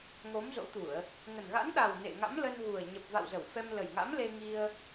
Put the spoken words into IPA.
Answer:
ŋ o˨˦ m z o̰˧˥ t̪ u˧˩˨ ə̯ | ŋ ə˨˩ n ɣ a̰˧˥ n ɗ a˨˩ w n ḛ˧˨ ŋ a̰˧˥ m l ə˧ n ɣ u˨˩ ə̯ ɲ ə˨˩ p̚ v a̰˧˨ w z ə˧˩ w f ɛ˧ m l ə˨˩ j ŋ a̰˧˥ m l e˧ ŋ i˧ ə̯

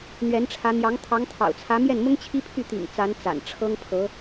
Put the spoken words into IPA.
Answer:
n̪ ɥ ɛ˧˥ n ʈ͡ʂʰ ä˧˥ n̪ j ɑ˧˥ ŋ t̪ʰ ɑ˧˥ ŋ t̪ʰ ɑ̰˨˩ ʊ̯ t͡sʰ ä˧˥ m j ɛ˥˩ n m ʊ˥ ŋ t͡ɕʰ i˥ pʰ y˥˩ t̪ ḭ˨˩ ŋ t͡s a˧˥ n t͡s a̰˨˩ n ʈ͡ʂʰ ɤ˥ ŋ pʰ ɤ˧˥

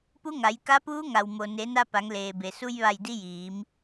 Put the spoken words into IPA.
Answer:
p u˧˥ ŋ a˩˧ j k a˧˥ p uː˧˥ ŋ a˩ w m o˩ n e˩˧ n a˧ p a˩˧ ŋ l eː˩ b e˩ s u˧ j ʋ a˧˩ j d i˧˥ j iː˩˧ m

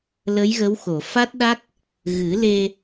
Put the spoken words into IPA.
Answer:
l ə˧˥ j ɣ ə˧˥ w x o˨˩˨ f a˦˥ t̚ ɗ a˦˥ k̚ | ɣ ɨ˨˩˦ l e˧

